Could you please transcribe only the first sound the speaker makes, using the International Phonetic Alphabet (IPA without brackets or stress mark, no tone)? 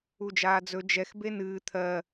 u